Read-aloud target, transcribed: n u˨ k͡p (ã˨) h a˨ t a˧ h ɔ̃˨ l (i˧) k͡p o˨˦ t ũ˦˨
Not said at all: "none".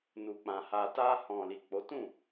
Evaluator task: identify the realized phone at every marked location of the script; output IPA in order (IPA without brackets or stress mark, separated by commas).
ã˨, i˨